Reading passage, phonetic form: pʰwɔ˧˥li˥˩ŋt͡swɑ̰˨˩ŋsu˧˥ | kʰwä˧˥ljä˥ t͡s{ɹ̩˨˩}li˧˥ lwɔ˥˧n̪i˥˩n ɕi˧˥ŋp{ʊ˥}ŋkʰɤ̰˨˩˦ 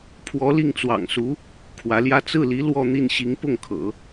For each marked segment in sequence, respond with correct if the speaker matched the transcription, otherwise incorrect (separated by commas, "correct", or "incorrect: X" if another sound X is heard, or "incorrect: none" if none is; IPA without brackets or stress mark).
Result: incorrect: ɹ̩˥˩, incorrect: ʊ˥˩